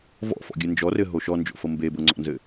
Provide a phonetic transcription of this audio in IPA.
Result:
v ɔ̰ f ɔ̰ ɡʲ ɘ n d͡ʒ ɔ r ɘ ɦ o ʃ ɔ n d͡ʒ o̰ f ɤ m b e b ɤ ŋ͡ǀ ɔ̰ n z ɘ

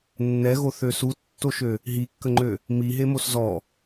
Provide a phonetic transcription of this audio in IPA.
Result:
nː ɛ ɣ o θ ø s u tː o ʃ ø | ɦ i kː ə ŋ͡ǃ ø | m i ɦ e m o s z ɔ

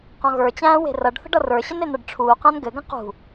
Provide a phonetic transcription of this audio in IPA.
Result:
q ɔ̃ ɣ ə˞ t͡ɕ æ̃ː w e̤ r ʌ ɖ θ ə̤ ɖ ʌ r ə˞ ɕ ə n e n̪ ʌ ɖ ʈ͡ʂʰ uː q æ̃ n ɡ ɘ ɡ ə̃ q ṳ

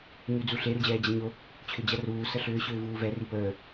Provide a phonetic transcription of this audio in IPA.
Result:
ɲ y d͡z u ɬ e ɾ u d͡ʑ ɛː d͡ʑ ɐ ɲ o | t͡ɕʰ ʏ d͡ʑ ɐ r uː s ə ɬ ʏː ɕ ʏː v uː v ɛ r i p əː

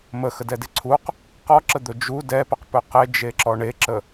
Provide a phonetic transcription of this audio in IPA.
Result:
m ə x ə d ɛ d e ǀʰ u q | q ɔ ǁ ə d̪ ɵ d͡ʒ u d ɛ p ə q p ɵ q e d͡ʒ e ǁ ɔ ɳ e ǁ ə

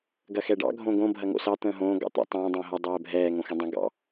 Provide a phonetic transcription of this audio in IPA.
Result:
ɡ ɐ x ɛ ɖ ɑ̰ ɡʱ õ ɡ õ bʱ ɐ ŋ o̰ s ɑ t̪ ə̃ː ɦ õː ɡ ɑ̰ t̪ ə̰ tˤ ə̃ː dˤ ə̃ː ɦ ɐ dˤ ɛː bʱ ɛː ŋ õ x ɐ̃ dˤ ə̃ ɡ ɑ̰

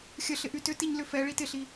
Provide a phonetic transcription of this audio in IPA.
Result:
xʲ ə ɬ ɪ ʔ y t ʏ t i ɲ l ʏ f ɛ ɭ i t ɪ ɬ i

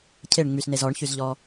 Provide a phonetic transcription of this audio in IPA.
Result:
cʰ e ɳ ŋ͡m y s n e z ɔ ɳ ç y z ʎ ɔ

